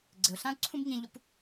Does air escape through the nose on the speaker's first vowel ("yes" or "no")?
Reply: no